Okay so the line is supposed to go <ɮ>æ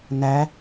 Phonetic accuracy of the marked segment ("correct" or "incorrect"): incorrect